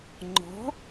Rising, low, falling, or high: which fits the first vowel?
rising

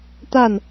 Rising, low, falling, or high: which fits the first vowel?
falling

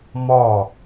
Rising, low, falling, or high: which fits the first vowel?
falling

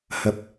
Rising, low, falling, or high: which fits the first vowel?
low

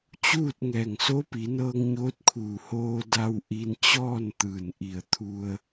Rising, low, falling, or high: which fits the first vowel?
falling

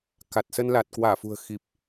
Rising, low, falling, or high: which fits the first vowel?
low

